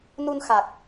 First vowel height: high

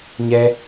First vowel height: mid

